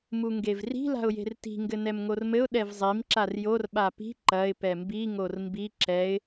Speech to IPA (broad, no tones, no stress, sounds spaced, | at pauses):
m u ŋ ɡ e v r i̤ l a̤ ʊ̯ j e̤ r t i̤ ŋ ɡ ɘ n ɛ m ŋ o r m ɘ ʊ̯ ɗ ɛ v zˤ i m ǁ a r j o r ɓ a p i̤ ǃ ɐ ɪ̯ p ɛ m b i ŋ o r m b i ǁ ɛ ɪ̯